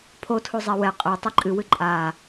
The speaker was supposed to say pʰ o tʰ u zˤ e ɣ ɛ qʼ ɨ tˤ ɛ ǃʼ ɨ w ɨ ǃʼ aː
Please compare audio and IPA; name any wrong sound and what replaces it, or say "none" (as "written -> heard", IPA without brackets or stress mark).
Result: ɣ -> w